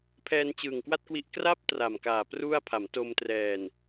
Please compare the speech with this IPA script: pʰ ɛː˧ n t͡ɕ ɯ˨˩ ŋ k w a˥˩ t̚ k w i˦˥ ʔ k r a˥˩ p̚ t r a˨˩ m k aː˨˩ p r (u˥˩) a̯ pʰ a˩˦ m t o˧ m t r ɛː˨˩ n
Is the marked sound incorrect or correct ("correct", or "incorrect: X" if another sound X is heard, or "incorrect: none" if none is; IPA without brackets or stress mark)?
correct